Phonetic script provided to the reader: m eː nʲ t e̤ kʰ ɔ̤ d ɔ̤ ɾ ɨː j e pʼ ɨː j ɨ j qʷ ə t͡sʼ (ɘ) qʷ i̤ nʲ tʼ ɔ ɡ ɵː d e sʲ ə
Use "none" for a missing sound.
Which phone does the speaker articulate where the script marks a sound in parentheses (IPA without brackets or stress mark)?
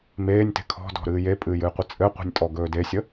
ɘ